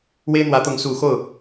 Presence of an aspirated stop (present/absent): absent